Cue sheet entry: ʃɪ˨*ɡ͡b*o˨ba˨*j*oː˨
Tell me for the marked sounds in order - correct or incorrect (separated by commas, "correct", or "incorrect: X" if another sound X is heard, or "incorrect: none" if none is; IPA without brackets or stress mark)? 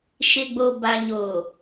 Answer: correct, incorrect: ɲ